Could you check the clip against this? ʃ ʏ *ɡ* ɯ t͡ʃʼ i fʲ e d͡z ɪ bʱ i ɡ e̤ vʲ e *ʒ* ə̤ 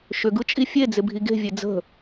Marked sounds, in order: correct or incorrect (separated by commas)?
correct, incorrect